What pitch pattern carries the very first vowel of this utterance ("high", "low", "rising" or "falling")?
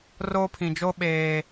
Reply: high